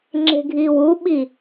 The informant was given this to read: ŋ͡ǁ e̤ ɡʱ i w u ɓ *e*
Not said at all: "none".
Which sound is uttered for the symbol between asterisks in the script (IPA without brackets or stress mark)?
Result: i